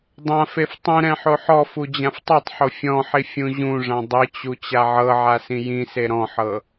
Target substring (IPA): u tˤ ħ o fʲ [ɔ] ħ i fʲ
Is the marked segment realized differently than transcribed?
yes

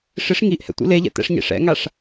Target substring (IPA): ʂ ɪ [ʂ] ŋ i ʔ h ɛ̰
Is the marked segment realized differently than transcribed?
no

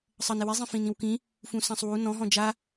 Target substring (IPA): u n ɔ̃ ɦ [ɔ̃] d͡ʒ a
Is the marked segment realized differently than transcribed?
no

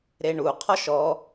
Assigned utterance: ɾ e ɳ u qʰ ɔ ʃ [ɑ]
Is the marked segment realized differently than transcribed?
yes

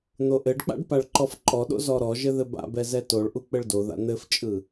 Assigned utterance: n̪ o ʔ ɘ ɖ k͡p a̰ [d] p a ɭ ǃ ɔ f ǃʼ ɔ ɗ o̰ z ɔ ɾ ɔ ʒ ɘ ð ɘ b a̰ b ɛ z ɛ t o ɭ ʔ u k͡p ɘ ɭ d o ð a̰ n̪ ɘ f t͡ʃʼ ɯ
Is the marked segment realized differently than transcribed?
yes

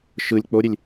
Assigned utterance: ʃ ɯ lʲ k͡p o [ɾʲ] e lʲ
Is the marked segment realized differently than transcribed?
no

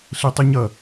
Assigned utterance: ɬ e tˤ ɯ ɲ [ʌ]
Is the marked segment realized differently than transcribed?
no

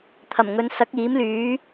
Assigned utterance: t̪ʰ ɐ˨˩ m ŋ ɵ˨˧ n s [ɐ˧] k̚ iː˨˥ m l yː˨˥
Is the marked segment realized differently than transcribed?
yes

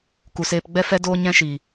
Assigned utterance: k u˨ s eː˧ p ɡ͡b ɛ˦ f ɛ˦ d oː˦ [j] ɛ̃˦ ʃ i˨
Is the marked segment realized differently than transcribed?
yes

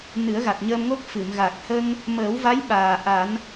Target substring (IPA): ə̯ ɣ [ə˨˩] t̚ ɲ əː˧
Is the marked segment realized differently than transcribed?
yes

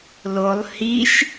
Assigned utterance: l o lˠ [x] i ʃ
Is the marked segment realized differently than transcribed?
yes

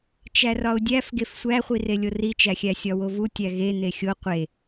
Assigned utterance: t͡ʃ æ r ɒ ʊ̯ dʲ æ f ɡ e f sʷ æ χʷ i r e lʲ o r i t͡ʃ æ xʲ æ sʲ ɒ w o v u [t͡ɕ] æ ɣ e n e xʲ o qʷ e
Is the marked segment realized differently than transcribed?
yes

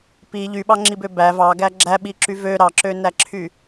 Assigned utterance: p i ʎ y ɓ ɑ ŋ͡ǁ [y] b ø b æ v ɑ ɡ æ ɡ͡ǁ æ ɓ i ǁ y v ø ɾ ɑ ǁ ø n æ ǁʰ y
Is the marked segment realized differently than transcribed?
yes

